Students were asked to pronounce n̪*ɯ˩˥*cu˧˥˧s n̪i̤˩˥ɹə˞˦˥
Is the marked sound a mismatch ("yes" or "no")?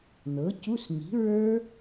yes